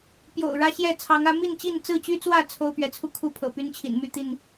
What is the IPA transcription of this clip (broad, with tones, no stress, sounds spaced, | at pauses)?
p j o̰˨˩ ʊ̯ ɻ ä˦ ɕ j ɛ˥˨ t͡sʰ ɑ˨˦ ŋ ä˨˦ m i˥˨ n t͡ɕ i˥˨ n t͡s ɹ̩˥˨ t͡ɕ y˦ t͡s w ä˥˨ t͡sʰ o˦ ʊ̯ p ɥ ɛ˨˦ t͡sʰ u˥˨ kʰ u˥˨ pʰ ɤ̰˨˩ p y˦ n t͡ɕʰ ḭ˨˩ n m y˥˨ t̪ i˥˨ n